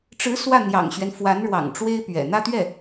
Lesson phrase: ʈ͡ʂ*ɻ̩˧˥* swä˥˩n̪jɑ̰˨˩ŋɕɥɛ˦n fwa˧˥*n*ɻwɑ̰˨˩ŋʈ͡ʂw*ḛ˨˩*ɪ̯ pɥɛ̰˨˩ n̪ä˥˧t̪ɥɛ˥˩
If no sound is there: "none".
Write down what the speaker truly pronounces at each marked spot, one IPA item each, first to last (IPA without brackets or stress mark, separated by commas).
ɻ̩˧˥, n, e˥